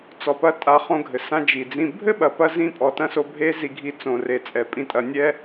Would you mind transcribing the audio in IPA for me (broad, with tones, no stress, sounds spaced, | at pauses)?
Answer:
t͡s ɔ˨ p ɐ˧ tʼ a˧ χ õ˧ ɡʱ ɘ˨ s ã˧ d͡ʒ i˨ d͡z ĩ˧ bʱ ɘ˦ ɓ ɐ˨ p ɐ˦ z ĩ˧ pʼ ɔ˨ t ɐ̃˦ s o˧ bʱ e˦ z i˧ ɡʱ i˧ t͡s õ˨ r e˨ t͡sʼ ɛ˨ pʼ ĩ˧ tʼ ɐ˧ nʲ ɛ˦